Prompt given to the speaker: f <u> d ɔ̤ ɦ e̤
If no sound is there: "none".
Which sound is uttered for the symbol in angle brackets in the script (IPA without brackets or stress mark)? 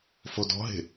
o